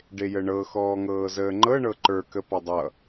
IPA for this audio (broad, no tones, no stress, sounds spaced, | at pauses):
ɖ e j ə ɳ ɤ x ɔː ŋ ɤː z əː ŋ͡ǃ ɤ ɳ ɤ ǃ ə˞ k ə p ɒ dˤ ʌ